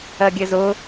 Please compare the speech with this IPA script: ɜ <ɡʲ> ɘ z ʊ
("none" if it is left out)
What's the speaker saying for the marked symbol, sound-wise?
ɡʲ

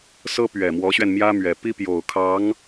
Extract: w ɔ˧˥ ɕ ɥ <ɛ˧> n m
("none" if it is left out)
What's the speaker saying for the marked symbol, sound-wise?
ɛ˧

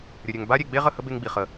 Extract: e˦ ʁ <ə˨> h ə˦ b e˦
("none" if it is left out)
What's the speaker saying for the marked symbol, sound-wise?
ə˦˨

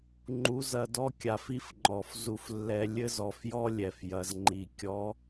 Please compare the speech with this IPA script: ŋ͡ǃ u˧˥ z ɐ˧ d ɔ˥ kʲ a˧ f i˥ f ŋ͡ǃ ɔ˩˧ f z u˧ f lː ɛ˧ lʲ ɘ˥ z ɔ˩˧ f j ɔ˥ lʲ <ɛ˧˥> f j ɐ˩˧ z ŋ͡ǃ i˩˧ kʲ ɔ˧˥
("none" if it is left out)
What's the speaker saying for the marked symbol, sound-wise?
ɛ˩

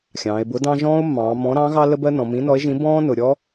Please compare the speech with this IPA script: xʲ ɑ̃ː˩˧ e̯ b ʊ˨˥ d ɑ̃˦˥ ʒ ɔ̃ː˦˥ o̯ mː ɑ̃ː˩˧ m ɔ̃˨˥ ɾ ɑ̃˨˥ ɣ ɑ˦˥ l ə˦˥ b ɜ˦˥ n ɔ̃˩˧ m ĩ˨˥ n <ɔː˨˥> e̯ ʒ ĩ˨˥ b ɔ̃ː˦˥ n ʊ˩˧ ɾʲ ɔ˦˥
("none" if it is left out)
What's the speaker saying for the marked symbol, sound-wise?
ɔ˨˥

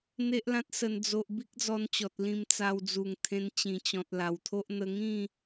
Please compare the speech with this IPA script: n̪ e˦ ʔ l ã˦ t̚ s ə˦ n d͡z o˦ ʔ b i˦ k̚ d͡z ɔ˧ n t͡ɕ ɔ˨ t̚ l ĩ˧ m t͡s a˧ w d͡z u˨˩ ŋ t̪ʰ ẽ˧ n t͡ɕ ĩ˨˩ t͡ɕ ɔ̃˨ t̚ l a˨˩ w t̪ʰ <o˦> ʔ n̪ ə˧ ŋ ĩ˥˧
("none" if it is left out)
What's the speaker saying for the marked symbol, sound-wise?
o˦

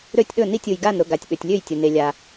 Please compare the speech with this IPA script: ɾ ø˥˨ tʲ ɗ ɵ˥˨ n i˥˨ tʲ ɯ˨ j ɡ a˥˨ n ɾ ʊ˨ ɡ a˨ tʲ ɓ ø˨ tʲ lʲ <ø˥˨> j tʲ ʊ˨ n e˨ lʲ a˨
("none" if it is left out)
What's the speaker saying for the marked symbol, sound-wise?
ø˥˨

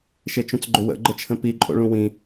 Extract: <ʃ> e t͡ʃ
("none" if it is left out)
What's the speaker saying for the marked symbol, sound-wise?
ʃ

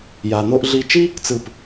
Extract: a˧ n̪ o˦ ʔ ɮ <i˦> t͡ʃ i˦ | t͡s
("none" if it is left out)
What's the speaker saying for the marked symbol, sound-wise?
i˦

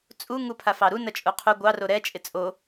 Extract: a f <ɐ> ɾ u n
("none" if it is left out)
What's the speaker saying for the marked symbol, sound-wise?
ɑ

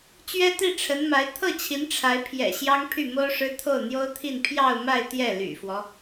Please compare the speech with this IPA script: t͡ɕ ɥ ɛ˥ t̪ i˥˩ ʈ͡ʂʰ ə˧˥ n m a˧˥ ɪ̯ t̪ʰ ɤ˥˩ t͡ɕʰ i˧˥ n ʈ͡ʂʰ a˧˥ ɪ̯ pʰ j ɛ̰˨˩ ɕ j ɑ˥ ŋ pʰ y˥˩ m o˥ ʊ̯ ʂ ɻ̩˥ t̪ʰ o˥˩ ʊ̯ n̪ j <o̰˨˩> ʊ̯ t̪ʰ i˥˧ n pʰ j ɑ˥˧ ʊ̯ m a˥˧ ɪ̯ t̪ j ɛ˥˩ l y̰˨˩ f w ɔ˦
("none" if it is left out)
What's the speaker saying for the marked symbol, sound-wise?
o˥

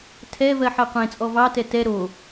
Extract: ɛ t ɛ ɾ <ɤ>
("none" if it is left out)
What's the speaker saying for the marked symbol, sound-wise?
o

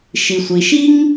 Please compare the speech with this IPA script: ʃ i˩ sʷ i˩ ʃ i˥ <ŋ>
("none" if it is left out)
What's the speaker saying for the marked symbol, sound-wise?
ŋ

